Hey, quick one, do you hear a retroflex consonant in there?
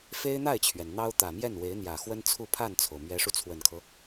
yes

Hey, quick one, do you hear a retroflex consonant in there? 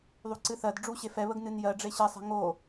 yes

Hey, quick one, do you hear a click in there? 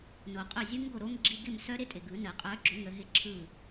yes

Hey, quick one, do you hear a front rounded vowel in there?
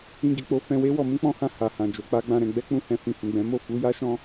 no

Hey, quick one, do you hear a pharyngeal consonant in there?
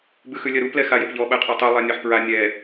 yes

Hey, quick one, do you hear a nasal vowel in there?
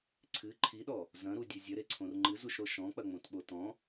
yes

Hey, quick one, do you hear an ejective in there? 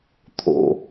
no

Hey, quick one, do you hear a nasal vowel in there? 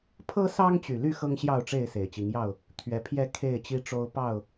no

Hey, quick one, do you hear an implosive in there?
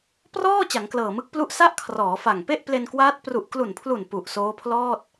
no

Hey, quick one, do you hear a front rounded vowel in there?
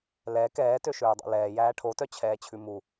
yes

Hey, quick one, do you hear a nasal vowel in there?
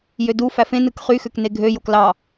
yes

